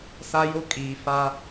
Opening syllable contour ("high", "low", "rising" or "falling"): high